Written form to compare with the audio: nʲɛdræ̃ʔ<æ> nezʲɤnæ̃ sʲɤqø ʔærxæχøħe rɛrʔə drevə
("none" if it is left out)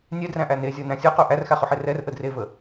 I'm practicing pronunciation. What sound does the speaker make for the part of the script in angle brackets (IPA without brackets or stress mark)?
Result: æ